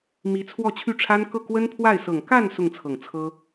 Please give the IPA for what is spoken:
m i˧˥ t͡sʰ w ɔ˥˧ t͡ɕʰ y˥˩ ʈ͡ʂʰ a˥ n k ɤ˥˩ k w ə˥ n pʰ w a˥˩ ɪ̯ s ɤ˨˩ ŋ k a˥˧ n s ʊ˥˩ ŋ t͡sʰ ɤ˨˩ ŋ t͡sʰ ɤ˥

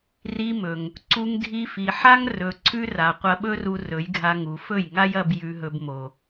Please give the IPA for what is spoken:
r i˧ m ɵ˨ ŋ | ǀ u˧ ŋ dʱ i˧ f i˨ ħ a˦ ŋ r ɵ˨ ǀʰ ʉ˦ r a˨ qʷ ɐ˧ ɓ ɵ˦ r u˧ r ɵ˨˦ j ɡʱ a˧ ŋ u˨ f ɵ˦˨ j ŋ a˦ j ɐ˧ b j ʉ˧ ɦ ɵ˧ b m o˨

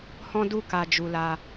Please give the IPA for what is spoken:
h ɔ̃˦ d u˦˨ k a˧ d͡ʒ u˧ l a˧

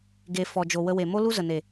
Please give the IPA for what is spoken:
ɡ e˨ f ɔ˨ d͡ʒ o˨ w ə˧ w e˨ m o˦ l u˦ z ə˨ n e˨

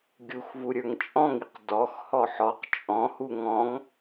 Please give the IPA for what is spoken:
ɡʲ u x v u ɾʲ ə˞ ŋ t͡ʃʼ ɔ̃ ŋ i q d ɔ x h ɔ ħ ɔ q t͡ʃʼ ɔ̃ h u ŋ ɔ̃ ŋ

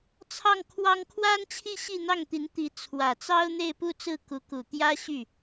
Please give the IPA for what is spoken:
t͡sʰ ɑ˥˩ ŋ kʰ w ɑ˥ ŋ kʰ w a˥ n t͡ɕʰ i˥˧ ɕ i˥˧ n̪ ɑ˥˩ ŋ t̪ i˧˥ n t̪ i˧˥ t͡sʰ w ä˨˩ t͡s ɑ˥ ʊ̯ n̪ e˥˧ ɪ̯ p u˥˧ t͡s ɹ̩˥˩ k u˧˥ k u˨˩ t̪ j ä˥ ɕ y˥˩

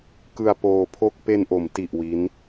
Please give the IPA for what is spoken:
k ɯ˧ a̯ p oː˧ pʰ o˥˩ k̚ p e˧ n ʔ o˩˦ m t i˨˩ ʔ w i˦˥ n

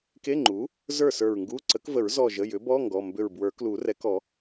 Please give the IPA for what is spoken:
k e˧˥˧ ŋ͡ǃ u˩˥ | z ə˞˥˩ s ə˞˧˩ ɹ ŋ ɡ u˧˥˧ ǀ ə˩˥ k v ə˨˩˦ ɹ z ɔ˧˩ ʒ ə˩˧˩ j ʏ˩˥ b ɔ˧˥˧ ŋ ɡ ɔ˩˧˩ m b ʏ˧˩ ɹ b w ə˞˨˩˦ k l u˨˩˦ r ɛ˩˥ k ɔ˨˩˦

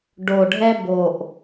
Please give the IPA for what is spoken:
ɖ o˨˩ ɖʱ ɛ˥ b o˨˩ ʔ

